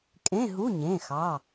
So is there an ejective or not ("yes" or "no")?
yes